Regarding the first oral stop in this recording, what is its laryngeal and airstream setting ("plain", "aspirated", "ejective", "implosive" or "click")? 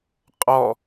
ejective